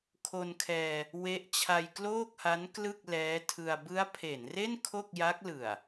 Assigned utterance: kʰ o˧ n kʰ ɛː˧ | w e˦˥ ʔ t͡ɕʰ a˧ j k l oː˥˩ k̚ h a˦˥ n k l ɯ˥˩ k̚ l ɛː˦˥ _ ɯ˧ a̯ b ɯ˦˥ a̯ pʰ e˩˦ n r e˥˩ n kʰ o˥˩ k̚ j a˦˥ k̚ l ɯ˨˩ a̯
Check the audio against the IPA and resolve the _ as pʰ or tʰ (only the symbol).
tʰ